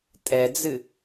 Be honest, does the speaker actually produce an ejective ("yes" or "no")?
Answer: yes